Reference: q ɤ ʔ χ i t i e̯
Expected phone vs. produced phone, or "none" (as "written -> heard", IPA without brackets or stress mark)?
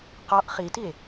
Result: ɤ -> ɔ